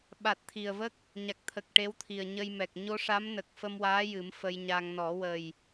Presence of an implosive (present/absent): present